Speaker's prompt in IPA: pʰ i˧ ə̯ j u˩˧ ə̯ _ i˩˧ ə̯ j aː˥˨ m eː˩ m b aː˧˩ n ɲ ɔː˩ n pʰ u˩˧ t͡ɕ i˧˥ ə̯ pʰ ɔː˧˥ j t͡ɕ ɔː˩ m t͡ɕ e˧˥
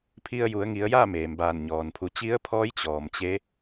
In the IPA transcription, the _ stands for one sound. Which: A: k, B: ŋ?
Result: B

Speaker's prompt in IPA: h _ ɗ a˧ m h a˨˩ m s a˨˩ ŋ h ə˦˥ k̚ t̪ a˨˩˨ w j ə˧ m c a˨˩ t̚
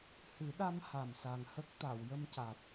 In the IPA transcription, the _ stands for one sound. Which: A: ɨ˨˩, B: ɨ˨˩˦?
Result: B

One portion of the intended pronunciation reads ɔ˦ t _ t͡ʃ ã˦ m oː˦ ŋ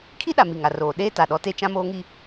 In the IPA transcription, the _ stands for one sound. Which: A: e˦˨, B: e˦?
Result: B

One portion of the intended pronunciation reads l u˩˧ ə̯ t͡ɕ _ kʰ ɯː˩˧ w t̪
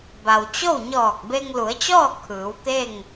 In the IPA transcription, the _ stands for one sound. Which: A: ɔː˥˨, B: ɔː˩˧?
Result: A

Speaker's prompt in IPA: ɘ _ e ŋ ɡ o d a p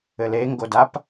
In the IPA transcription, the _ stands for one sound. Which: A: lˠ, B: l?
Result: B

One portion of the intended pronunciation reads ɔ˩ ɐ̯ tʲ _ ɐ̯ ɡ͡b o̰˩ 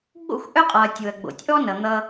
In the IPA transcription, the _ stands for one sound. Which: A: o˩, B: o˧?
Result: A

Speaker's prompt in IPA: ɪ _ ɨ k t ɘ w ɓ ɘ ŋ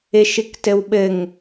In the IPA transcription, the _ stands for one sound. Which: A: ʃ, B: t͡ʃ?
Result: A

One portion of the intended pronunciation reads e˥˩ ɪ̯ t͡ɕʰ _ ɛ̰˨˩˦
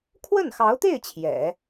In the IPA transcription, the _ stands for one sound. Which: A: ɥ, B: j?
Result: B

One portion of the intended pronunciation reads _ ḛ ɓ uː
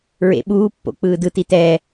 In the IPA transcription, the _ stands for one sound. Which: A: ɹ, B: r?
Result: A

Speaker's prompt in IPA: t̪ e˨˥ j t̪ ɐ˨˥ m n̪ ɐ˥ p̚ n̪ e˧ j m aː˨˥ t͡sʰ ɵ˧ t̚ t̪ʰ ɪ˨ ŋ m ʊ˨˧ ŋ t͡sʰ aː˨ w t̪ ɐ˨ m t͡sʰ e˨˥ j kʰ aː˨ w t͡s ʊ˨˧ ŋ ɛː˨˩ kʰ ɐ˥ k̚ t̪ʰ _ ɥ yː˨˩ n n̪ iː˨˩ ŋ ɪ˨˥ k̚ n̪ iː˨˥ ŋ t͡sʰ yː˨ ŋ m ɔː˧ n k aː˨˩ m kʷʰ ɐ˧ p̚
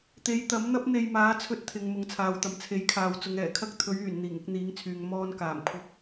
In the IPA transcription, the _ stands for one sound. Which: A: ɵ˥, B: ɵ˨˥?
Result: B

